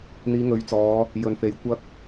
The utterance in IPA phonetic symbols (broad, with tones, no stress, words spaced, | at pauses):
n̪iː˨˧ŋɵ˨˥ɥt͡sɔː˨˧ | jɵ˨nfe˨˥jkʷɐ˥k̚